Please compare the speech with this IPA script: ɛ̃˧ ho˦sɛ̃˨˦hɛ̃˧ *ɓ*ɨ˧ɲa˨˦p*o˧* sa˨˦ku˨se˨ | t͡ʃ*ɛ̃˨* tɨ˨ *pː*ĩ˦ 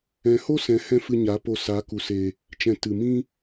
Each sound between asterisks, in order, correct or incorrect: incorrect: f, correct, correct, incorrect: m

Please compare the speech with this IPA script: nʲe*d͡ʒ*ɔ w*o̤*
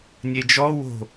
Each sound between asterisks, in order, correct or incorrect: correct, correct

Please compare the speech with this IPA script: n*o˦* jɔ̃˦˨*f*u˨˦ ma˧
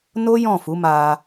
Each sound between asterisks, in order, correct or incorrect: correct, correct

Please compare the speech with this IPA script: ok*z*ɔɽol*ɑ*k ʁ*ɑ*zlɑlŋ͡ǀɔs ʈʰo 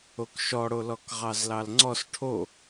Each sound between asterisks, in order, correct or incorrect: incorrect: ʃ, incorrect: ɔ, correct

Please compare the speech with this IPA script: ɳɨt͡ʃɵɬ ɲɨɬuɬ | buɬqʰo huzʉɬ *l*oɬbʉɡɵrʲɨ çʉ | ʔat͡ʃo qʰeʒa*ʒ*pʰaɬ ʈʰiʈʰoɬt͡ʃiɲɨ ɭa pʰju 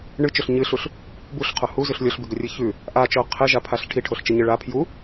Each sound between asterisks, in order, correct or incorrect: incorrect: lʲ, incorrect: none

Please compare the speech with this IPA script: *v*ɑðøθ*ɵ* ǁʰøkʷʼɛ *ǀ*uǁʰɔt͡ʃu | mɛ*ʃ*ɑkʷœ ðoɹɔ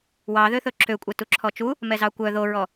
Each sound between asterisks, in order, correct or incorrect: incorrect: w, correct, incorrect: t, incorrect: z

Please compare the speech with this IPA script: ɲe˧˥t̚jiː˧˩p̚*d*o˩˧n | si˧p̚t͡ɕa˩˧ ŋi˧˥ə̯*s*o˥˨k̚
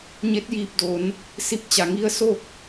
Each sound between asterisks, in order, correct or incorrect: correct, correct

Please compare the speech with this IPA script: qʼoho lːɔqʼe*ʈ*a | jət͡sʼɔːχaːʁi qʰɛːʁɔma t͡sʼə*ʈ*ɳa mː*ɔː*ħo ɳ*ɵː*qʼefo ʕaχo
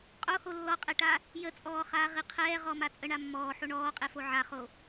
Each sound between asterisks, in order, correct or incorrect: correct, incorrect: none, correct, incorrect: ɔː

